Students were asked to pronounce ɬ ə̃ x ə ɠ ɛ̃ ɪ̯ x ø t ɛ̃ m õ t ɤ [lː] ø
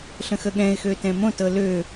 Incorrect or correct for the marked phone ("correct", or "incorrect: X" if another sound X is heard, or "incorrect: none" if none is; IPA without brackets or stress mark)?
incorrect: l